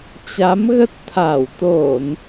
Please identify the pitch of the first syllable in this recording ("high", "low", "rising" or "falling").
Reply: rising